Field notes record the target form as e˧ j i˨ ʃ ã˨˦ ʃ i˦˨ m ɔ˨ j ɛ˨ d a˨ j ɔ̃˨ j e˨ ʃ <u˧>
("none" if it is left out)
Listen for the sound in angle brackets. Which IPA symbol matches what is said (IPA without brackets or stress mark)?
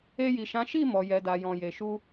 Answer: u˧